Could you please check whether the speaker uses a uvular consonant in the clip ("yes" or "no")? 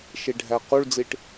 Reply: yes